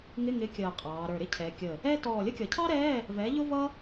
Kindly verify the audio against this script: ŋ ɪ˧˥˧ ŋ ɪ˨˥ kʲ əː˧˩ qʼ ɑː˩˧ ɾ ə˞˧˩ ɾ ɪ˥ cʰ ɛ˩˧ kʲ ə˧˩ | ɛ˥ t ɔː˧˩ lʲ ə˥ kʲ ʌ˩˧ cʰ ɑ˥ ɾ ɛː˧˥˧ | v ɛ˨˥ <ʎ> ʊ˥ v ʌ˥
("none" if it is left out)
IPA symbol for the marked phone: ʎ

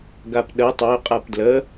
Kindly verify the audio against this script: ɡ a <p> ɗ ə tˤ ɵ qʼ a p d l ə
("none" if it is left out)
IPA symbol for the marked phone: p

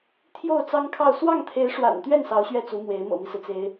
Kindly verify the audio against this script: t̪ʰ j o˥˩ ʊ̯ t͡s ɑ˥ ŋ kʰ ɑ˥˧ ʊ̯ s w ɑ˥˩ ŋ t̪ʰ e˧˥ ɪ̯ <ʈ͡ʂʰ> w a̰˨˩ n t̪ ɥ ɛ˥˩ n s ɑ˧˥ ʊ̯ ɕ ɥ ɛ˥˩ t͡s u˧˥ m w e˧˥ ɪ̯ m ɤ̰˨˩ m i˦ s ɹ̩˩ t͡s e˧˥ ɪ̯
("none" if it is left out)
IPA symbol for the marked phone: ʂ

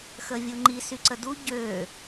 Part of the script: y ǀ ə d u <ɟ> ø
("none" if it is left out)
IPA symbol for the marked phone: ɟ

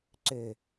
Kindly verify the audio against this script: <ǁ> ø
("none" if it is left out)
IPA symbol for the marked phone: ǀ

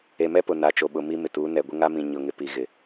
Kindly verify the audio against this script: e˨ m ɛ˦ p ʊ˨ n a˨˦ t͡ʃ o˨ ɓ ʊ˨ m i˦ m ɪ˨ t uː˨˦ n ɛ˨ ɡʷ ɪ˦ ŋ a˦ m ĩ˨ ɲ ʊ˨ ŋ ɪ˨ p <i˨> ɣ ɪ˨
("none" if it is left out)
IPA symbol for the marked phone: i˨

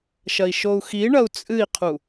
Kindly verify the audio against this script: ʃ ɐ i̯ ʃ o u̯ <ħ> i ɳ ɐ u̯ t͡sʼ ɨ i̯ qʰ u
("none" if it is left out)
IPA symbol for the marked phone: x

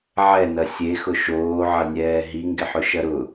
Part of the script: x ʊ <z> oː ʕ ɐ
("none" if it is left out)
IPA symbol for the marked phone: ʃ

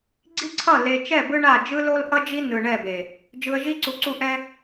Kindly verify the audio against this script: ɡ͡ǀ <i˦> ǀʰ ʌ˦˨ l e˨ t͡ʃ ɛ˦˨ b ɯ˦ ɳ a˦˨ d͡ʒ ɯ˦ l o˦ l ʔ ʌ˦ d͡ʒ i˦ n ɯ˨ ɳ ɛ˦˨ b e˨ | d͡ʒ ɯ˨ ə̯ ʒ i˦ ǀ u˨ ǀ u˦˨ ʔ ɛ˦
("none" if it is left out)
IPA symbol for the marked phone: i˦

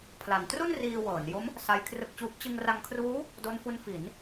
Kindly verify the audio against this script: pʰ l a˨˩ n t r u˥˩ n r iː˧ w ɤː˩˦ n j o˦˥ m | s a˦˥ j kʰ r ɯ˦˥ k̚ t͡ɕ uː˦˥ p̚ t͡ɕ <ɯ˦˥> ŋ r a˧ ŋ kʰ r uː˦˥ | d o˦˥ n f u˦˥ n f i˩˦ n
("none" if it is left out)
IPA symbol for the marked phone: ɯ˧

